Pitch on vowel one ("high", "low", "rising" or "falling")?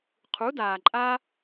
rising